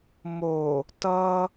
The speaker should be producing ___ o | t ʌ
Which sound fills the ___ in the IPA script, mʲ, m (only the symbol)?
m